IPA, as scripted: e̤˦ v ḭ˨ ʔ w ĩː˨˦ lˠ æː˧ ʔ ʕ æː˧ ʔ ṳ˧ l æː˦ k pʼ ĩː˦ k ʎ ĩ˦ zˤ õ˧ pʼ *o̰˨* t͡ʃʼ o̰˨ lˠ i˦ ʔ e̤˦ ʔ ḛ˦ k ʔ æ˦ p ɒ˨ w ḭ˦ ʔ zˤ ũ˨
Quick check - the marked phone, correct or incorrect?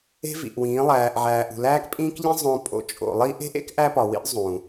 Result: incorrect